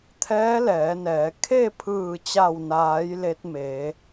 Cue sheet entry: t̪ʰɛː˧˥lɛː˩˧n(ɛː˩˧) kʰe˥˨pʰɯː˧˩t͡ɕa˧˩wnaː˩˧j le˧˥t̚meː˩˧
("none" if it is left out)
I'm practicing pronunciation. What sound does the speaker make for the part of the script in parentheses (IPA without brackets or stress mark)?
ɛː˩˧